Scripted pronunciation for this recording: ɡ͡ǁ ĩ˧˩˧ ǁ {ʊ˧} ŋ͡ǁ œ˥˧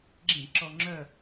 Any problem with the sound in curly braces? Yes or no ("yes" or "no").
yes